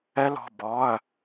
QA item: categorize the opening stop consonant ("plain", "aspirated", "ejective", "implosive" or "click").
plain